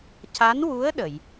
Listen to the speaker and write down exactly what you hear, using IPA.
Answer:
ca˧˥nwu˧˥ə̯ ɗə˨˩˨j

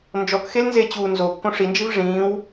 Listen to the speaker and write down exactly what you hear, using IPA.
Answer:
nd͡ʒɔkxelnzet͡ɕuː nzokːõʂ ind͡ʒiv ʐĩːw

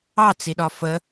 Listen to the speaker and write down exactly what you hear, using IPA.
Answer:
ɑt͡siɗɒ fə

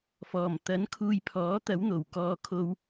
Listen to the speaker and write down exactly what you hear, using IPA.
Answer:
fɔː˨˩mt̪ɐ˨˥n kʰuː˧jpʰɔː˨˥t̪ɐ˨˥wn̪o˨˩w kɔː˧kʰo˧w

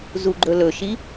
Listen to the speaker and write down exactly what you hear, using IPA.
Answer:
zuɡ͡ǃɵlɵʃi

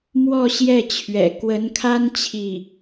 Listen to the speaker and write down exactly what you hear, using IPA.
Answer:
mwɔ˥˧ɕjɛ˥˩t͡ɕʰɥɛ̰˨˩ kwə˧˥nkʰa˥n t͡ɕʰi˥˩

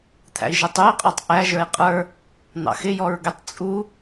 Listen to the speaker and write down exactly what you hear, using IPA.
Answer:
t̪ʰæ̰i̯ʒɛtˤui̯qʼɔtˤ ʔæʒə˞i̯ qʼə˞ | n̪ɑ̰xɪ jɔɹɡɪtˤ t͡sʼu

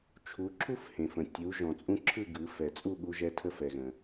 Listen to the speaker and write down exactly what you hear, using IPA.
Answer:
t͡ʃʰu˩˧ǁʰu˧fhẽ˩fə̃˩ tʲu˩˧ ʒɔ̃˩t͡sʼũ˧ ǁʰɯ˥˩ɡɯ˩˧fɛ˩t͡sʼu˥˩ ɠu˧ʒɛ˧ tʰə˧fɛ˩ɣə̃˩

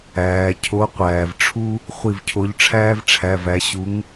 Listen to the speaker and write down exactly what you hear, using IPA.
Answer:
æː˩cʰo˨˦ qʷæː˩vʈ͡ʂʰu˥ | χʷi˧˩vcʰo˨˦ʎ ʈ͡ʂʰæː˥vʈ͡ʂʰæ˩˧˩væ˨˦ ɕu˨˦ŋ

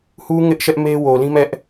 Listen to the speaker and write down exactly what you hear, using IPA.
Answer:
hu˦ŋɪ˦ʔ ʃɛ˦ʔme˦ wo˨lĩ˦mɛ˦ʔ

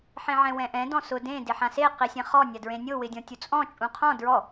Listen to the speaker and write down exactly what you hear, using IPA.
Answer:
ħẽʕɛ̃wɛ̃ʔɛ̃ dɔ̃sʊ dẽ dɪħãse qisʲɛ̃χɔ nʲadɹẽnʲo wɪdʲɔ̃tʲut͡sʼɔ̃ t͡ʃʼũqʰɔ̃ dɹɔ

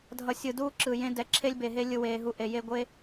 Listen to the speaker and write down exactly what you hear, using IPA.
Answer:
dʱʌ˨sʲɯ˨duː˧ ǁɯ˨jẽ˧ dɛ˨ ǁʰe˧lʲbe˨ɦe˧ lʲɯ˦weː˧ɦu˦ʔe˧ je˧ɡʷe˦

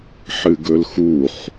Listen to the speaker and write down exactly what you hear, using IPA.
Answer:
ħɨɡɵlxuχ

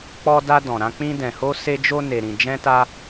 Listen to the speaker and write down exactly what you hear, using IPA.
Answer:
k͡pɔ˧da˧ dɔ̃˨ ɾã˧k͡pĩ˧ dɛ̃˨ho˧se˧d͡ʒo˧ ne˨ɾĩ˨d͡ʒɛ̃˧ta˧

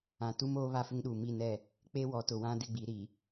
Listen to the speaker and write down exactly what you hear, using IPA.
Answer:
ã˨tu˦m oː˦ βa˦fɪ˦ŋɗuː˨ mi˦˨nɛ˦˨ | k͡pe˦wɔ˨˦tʊ˨wã˦ dɪ˦ɡ͡bi˨˦ɾi˨

